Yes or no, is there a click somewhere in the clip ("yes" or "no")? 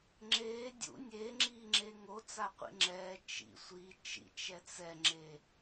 yes